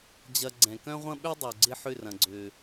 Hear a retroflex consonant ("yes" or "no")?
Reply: no